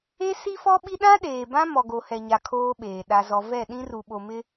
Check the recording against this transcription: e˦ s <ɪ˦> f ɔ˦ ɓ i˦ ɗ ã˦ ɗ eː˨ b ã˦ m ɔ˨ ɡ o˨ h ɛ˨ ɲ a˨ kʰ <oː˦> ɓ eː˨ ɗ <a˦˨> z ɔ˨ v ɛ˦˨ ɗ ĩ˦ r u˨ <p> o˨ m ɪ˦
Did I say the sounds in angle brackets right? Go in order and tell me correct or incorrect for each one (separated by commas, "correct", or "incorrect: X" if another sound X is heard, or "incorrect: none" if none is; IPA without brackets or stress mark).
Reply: incorrect: i˦, correct, incorrect: a˨, incorrect: ɓ